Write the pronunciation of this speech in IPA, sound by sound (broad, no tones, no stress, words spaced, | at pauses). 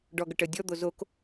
ɖɔɡ ʏʈə dʲɔd̪o zok